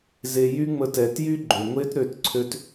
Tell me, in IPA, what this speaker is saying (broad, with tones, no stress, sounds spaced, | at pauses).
z e˧ j y˦ ŋ͡m ə˦ t ɛ˧ t j y˦ ɡ͡ǃ ø˨ ŋʷ e˦ t ɾ ø˦˨ t ǀʰ ø˦ t